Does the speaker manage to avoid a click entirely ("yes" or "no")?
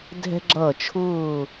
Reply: no